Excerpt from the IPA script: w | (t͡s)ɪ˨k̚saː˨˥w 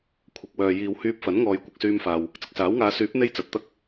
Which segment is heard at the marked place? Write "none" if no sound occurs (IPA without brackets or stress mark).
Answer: t͡s